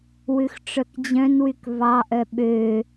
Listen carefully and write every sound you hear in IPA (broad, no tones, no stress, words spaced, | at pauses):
wʉxʈ͡ʂœkd͡ʑœ̃nwyk vɑʔœ ɓø